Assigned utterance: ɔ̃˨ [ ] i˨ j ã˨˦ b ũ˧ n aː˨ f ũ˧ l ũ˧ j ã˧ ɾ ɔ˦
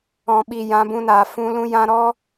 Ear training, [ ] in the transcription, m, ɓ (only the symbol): ɓ